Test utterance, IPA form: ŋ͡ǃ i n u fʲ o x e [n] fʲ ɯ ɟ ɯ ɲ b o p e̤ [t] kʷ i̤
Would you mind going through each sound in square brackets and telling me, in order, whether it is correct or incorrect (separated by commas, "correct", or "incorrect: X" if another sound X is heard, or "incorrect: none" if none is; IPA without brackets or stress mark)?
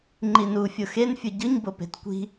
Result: correct, correct